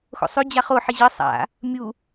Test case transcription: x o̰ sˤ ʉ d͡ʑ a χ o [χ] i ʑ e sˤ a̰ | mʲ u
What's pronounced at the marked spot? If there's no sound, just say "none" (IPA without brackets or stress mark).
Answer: ħ